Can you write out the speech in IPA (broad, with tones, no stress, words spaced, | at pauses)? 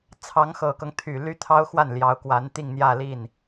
t͡sʰɑ˧˥ŋxɤ˨˩kɤ˦ŋ t̪ʰy˨˩ ly˥t̪ʰɑ˥ʊ̯xwa˥˩n ljɑ˧˥ʊ̯kwa˧˥n t̪i˥˧ŋn̪jä˥˧li˥˩n